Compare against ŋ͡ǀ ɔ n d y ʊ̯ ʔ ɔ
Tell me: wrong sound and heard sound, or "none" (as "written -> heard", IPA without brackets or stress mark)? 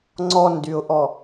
none